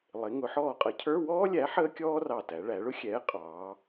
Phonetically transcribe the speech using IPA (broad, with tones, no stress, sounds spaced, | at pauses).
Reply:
lˠ ɪ˩˧ ŋ ʊ˩˧ ħ ɔː˧˩ qʼ ʌ˨˥ cʰ ə˞˧˥˧ w ɔː˥ lʲ æ˨˥ ħ əː˥ kʲ ɔː˥ r ɑ˧˩ t æ˩˧ ɭ æ˩˧ ɭ ʊ˥ xʲ ɛː˨˥ qʼ ɑː˩˧